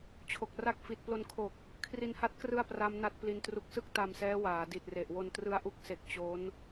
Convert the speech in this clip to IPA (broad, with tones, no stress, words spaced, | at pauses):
t͡ɕʰo˨˩k̚ra˥˩k̚ fi˨˩t̚plo˧nkʰo˨˩k̚ | kʰri˧nha˦˥t̚ krɯ˥˩a̯pra˦˥m na˦˥t̚pli˧ntru˦˥k̚ sɯ˥˩k̚ta˧msɛː˦˥ waː˩˦ di˨˩t̚re˨˩ʔwo˧ntrɯ˦˥a̯ ʔu˦˥k̚se˨˩k̚ t͡ɕo˦˥n